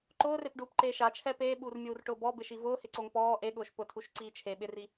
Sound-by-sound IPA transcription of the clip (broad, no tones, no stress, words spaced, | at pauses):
ǃʊːrepɖuːpǃeː ʃat͡ʃʰɛ peːɓuːrmʲuːrʈʊː bɔbɪʃi vʊːhɪǀoŋ pɔː ʔeɠʊːʃ pʊtʰuʃǀiː t͡ʃʰe ɓɪri